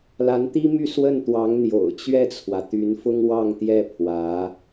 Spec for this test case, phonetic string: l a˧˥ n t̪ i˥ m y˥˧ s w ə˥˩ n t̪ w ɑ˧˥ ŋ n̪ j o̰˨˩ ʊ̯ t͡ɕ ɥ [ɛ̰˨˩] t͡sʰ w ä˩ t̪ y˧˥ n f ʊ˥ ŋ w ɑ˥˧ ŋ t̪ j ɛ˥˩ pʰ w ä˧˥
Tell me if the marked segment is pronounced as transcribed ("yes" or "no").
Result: no